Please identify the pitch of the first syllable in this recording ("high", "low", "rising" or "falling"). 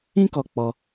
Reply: high